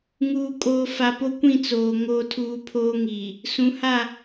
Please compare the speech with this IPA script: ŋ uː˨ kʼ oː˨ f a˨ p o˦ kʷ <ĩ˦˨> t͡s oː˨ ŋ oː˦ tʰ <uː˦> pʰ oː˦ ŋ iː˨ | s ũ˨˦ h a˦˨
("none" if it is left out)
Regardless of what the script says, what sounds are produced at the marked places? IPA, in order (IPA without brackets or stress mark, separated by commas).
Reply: ĩ˦˨, uː˦